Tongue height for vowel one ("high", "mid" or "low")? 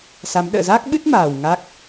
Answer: low